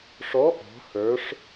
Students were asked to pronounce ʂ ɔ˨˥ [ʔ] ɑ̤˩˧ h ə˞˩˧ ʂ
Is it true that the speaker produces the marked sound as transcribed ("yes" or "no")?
yes